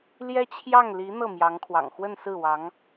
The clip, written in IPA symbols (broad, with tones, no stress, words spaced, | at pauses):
ljɛ˥t͡ɕʰjɑ˥˩ŋ li˧˥ n̪ɤ˥˩mjɑ˧˥ŋkʰwɑ̰˨˩ŋ xwə˥˧nsɹ̩˥˩wɑ˧˥ŋ